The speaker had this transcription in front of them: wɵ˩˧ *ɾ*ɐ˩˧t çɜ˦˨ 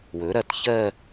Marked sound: correct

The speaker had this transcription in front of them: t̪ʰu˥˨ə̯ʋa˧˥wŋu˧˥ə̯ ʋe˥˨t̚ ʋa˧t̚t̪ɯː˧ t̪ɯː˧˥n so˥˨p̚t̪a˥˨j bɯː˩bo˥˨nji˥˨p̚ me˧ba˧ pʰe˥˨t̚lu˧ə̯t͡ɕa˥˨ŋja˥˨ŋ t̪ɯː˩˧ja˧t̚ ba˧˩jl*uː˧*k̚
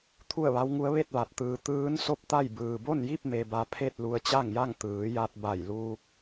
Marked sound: correct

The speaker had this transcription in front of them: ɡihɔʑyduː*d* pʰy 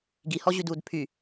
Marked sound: correct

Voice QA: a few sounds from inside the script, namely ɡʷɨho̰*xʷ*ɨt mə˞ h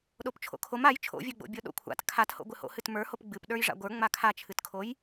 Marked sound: incorrect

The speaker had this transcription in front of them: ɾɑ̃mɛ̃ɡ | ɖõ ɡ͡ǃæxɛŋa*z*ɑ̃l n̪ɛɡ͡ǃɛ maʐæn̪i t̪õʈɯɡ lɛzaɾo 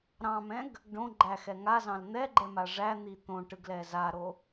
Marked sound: correct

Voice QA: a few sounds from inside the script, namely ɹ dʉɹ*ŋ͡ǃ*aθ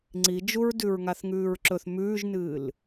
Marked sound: incorrect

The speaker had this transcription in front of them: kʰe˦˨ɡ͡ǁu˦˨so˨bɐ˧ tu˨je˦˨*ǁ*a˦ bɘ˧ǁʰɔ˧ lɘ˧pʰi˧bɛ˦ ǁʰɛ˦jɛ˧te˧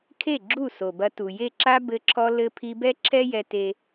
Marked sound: correct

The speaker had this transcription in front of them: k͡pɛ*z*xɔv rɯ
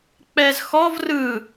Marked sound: correct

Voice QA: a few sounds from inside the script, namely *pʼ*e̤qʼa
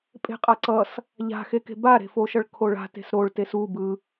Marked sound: correct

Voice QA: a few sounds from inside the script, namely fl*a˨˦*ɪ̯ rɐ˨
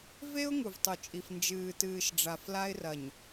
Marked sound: incorrect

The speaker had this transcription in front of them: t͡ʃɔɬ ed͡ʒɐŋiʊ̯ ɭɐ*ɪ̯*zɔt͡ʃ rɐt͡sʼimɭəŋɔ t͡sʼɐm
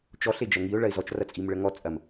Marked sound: correct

